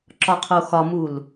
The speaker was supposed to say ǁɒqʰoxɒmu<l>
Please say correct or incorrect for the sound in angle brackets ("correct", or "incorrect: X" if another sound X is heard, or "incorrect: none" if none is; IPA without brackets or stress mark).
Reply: correct